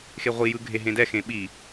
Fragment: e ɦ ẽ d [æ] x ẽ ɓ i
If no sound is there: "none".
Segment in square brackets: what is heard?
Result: ɛ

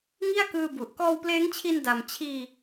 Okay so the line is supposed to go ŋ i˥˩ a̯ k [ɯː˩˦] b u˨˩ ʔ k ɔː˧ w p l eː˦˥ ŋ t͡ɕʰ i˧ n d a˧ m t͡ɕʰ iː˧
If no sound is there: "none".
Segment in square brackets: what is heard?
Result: ɯː˧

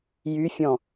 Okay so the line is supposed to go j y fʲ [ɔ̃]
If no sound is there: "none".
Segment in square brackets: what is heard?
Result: ɔ̃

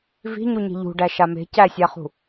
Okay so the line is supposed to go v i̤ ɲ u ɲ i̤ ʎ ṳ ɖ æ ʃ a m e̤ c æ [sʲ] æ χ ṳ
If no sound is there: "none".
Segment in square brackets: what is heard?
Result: sʲ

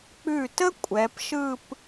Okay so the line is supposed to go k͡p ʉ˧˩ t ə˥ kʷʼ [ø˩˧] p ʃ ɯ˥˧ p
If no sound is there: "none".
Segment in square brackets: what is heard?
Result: ɛ˩˧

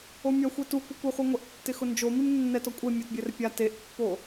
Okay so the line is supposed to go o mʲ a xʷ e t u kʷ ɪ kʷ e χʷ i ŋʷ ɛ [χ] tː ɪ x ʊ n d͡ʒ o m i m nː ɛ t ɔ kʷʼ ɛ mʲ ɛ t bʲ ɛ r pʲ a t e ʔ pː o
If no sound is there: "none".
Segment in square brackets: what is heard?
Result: ʔ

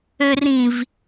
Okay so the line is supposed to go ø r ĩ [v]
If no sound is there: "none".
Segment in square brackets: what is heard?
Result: v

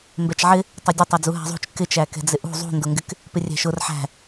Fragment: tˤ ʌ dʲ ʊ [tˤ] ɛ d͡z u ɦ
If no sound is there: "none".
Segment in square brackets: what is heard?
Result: tˤ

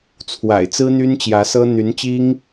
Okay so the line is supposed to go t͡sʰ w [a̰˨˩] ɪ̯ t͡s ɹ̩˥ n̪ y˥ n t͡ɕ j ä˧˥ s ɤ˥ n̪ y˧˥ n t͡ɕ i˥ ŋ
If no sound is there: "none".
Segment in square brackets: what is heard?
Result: a̰˨˩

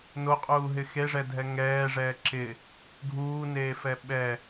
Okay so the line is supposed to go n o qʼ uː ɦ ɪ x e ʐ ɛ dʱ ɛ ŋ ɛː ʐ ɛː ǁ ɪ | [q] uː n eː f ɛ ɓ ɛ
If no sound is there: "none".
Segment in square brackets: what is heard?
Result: ɡʱ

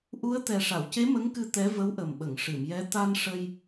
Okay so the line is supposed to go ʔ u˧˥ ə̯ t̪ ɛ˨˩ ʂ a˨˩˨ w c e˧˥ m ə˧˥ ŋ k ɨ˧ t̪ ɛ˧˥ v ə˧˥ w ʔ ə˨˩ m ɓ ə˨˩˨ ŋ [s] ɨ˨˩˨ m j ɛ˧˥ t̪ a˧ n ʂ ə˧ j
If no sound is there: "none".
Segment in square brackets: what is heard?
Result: ʂ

